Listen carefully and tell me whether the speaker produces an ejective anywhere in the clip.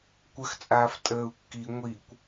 yes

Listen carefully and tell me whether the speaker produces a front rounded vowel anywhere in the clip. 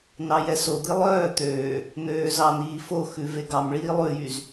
yes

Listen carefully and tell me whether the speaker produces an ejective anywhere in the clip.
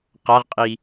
yes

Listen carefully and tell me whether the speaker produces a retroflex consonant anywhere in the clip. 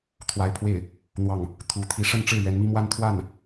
yes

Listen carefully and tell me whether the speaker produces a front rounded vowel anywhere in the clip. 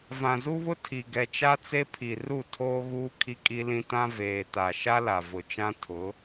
no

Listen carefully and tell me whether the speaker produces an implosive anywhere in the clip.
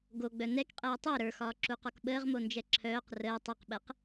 yes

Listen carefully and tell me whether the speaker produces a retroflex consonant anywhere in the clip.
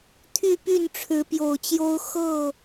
yes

